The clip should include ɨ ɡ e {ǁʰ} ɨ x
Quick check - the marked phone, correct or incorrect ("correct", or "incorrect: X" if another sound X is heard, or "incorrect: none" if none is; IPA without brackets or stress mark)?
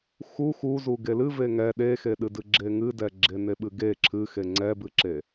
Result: correct